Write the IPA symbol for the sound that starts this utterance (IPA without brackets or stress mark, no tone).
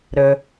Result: ɾ